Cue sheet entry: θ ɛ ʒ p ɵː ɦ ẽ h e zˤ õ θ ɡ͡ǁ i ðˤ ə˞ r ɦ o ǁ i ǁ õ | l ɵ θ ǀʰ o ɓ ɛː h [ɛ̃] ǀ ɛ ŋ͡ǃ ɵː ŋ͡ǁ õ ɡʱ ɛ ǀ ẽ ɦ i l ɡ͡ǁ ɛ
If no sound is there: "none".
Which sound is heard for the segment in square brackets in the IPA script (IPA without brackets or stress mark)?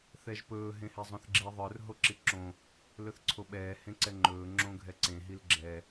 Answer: ẽ